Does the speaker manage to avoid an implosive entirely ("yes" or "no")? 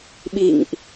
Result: no